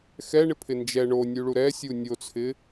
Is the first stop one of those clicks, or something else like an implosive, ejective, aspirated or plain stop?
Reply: aspirated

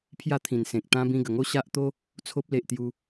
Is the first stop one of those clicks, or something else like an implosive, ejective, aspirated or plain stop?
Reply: aspirated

